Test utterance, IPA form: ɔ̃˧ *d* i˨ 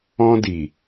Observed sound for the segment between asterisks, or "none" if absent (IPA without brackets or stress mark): d